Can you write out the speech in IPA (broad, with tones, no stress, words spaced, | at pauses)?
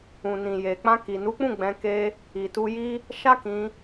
ũ˨nĩ˨je˨ k͡pã˧ki˨nu˨˦k͡pũ˦˨ ɡ͡bɛ̃˧ke˦ | i˨ tu˧ji˦ | ʃa˦kĩ˧